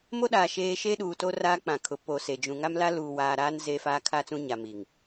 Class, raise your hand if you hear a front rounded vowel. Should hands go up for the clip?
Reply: no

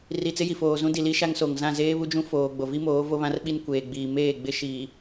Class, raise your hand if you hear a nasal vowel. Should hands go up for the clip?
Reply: yes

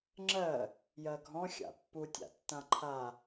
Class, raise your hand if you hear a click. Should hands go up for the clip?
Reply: yes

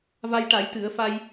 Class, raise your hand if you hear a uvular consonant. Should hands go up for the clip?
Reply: no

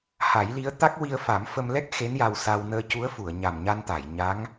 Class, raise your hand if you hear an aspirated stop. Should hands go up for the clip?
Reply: no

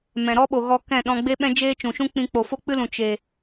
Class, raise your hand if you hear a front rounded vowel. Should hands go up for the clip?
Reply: no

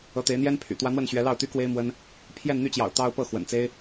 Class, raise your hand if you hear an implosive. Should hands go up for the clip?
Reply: no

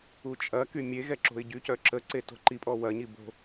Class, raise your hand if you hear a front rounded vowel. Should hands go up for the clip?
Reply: yes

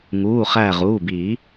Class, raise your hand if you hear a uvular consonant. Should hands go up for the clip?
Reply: yes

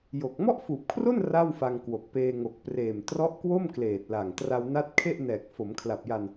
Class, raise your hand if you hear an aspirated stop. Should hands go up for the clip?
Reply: yes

